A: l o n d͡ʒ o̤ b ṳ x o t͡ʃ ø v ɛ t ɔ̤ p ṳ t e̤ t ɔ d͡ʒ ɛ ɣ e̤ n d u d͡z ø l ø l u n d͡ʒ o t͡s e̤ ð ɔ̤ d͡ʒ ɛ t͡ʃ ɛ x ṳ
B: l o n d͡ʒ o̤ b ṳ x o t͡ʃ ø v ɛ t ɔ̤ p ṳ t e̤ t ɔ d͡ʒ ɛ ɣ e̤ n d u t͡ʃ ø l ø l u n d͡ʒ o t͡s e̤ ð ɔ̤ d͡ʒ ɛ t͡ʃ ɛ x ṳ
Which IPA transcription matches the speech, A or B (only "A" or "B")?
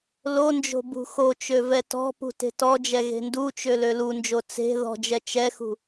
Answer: B